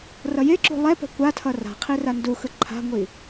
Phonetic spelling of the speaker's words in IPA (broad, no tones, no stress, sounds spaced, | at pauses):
r ʌ j e ǁ ṳ lˠ ɛ p ɛ̤ kʷ a tʰ ʌ r a̤ qʰ i r a n d u x ɯ ǃʰ a̤ ŋʷ i